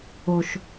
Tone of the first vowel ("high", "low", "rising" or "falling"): low